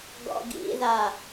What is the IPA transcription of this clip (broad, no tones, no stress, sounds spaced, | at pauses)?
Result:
ɡ ɔ̰ ɡ ḭ ð a